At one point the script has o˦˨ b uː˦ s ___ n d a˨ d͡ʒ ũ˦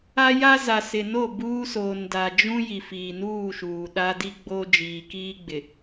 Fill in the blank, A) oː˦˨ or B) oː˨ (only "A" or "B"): B